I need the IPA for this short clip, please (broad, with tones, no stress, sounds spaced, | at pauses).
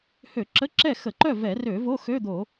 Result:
h ø˧˩˧ ǁ ə˧˥˧ ǁ ɛ˥˨ x ə˧˩˧ ǃ œ˥˨ v ɛ˧˩˧ r ø˧˩˧ v o˧˥˧ x ø˧˥˧ d̪ o˧˩˧